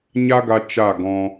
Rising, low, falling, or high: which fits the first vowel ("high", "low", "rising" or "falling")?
high